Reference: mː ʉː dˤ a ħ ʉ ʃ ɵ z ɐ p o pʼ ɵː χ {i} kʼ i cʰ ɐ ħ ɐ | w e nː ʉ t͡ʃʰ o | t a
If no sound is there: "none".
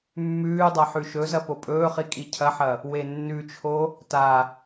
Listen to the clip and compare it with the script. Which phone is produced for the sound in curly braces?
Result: i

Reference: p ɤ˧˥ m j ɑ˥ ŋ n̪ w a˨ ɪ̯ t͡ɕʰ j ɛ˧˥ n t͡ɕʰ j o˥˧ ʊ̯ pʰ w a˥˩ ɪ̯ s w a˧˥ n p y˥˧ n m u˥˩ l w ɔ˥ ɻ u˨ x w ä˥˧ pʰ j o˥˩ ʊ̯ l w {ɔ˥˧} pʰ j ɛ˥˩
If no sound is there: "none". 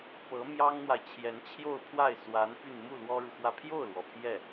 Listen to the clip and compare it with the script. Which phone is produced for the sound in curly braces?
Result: ɔ˩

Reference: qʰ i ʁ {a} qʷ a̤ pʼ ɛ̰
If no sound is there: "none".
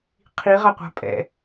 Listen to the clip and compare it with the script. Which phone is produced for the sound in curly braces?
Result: a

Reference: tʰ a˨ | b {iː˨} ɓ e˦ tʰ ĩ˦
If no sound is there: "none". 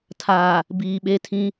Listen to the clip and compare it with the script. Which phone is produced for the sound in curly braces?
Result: iː˨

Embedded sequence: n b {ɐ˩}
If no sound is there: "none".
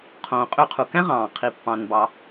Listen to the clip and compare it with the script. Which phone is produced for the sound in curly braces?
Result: ɑ˩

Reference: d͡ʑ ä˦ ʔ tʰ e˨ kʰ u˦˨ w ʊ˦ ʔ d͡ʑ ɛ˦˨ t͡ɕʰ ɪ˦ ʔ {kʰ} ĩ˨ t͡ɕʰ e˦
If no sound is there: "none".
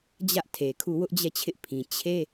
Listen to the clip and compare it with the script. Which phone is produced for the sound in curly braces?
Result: pʰ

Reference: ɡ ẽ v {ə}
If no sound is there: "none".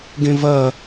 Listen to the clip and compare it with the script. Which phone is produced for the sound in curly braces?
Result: ɐ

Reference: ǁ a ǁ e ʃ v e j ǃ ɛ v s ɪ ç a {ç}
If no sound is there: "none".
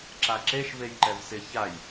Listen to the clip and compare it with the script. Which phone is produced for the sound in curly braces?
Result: j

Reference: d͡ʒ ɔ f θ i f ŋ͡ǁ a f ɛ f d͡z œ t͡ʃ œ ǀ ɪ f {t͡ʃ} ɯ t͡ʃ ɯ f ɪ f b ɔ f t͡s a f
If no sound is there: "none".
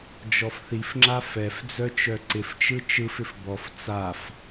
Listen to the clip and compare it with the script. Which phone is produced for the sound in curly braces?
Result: t͡ʃ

